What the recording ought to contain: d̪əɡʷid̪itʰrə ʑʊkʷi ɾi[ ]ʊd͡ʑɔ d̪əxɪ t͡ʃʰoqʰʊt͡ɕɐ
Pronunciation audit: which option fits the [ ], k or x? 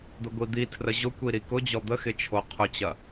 k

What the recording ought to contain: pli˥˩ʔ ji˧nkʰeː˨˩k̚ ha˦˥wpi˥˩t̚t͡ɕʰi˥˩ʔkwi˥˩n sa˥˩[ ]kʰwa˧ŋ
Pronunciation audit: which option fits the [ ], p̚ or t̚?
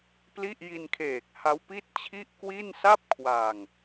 p̚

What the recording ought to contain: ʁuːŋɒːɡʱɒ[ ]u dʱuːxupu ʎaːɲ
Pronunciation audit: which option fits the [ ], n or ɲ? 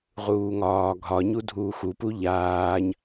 ɲ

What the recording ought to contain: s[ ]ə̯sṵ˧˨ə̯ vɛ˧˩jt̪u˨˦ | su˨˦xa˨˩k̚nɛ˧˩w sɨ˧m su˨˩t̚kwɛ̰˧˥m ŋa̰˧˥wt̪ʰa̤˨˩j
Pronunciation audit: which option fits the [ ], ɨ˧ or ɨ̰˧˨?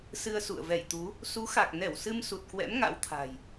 ɨ˧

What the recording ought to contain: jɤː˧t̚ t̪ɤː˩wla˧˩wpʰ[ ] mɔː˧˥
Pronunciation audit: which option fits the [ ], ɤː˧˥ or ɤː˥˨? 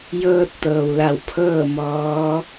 ɤː˥˨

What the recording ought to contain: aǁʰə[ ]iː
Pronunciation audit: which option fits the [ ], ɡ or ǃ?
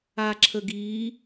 ɡ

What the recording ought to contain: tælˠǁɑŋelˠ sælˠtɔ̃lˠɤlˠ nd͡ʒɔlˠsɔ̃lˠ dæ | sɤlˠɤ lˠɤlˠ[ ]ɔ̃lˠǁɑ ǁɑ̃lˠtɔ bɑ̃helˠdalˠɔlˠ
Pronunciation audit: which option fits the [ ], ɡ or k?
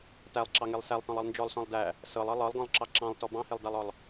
ɡ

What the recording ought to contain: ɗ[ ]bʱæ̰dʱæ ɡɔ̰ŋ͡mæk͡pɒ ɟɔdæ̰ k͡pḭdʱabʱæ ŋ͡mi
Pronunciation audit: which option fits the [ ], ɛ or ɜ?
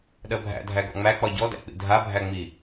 ɜ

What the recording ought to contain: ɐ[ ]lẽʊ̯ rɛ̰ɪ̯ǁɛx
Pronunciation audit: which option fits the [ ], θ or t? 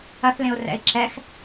θ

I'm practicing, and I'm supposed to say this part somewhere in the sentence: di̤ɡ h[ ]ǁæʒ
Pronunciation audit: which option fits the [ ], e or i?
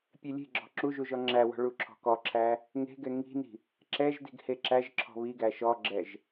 e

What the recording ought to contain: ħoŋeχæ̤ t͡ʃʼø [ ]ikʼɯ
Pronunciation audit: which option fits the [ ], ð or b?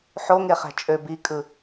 b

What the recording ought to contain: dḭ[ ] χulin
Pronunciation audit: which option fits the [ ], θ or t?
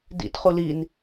t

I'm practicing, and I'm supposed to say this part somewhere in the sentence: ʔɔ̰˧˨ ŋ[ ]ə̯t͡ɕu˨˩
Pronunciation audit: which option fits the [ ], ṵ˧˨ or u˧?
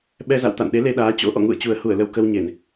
ṵ˧˨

